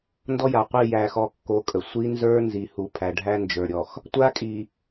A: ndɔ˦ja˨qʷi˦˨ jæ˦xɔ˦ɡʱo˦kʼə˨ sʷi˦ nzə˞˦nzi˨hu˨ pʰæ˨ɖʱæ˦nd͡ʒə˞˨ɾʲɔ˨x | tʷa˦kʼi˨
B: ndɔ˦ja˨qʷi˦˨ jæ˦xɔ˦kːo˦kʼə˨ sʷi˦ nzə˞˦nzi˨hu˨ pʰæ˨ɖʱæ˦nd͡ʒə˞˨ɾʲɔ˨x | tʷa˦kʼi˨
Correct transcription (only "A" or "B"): B